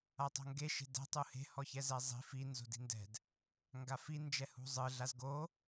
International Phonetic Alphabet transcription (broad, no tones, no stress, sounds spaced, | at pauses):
a tˤ o̤ ŋ ɡ e ʃ e̤ d ɛ̤ tˤ u h e̤ h ɔ ç ɛ z ɛ zˤ i̤ f i n z o̤ d i̤ n d ɛ̤ d | ŋ ɡ a f i n d͡ʒ ɛ h ṳ zˤ ɯ ɮ a z ɡ o